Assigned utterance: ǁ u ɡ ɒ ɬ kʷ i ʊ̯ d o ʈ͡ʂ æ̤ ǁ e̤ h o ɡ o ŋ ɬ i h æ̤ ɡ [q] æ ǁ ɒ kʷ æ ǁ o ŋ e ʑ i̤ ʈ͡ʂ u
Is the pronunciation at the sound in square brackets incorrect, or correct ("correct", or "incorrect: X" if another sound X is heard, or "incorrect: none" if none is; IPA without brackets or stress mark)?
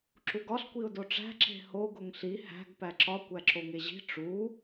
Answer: incorrect: p